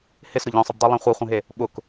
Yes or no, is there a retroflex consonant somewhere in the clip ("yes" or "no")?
no